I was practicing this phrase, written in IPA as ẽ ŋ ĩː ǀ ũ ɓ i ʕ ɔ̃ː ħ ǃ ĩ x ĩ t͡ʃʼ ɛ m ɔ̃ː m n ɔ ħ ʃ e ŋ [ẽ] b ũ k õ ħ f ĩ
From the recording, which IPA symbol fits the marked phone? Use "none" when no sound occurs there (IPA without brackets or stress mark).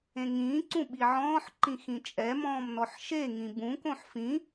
ĩ